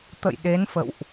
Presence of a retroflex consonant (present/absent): absent